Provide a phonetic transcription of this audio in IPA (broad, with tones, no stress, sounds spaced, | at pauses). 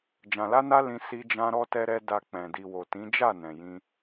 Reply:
d͡ʒ ã˨ l a˧ n a˧ l ĩ˧ s i˧ d͡ʒ ã˧ ɾ ɔ˦ t ɛ˦ ɾ ɛ˦ d a˧ k͡p ɛ̃˨ d i˨ w o˨ t ĩ˨˦ d͡ʒ a˦˨ n ɛ̃˨ j ĩ˧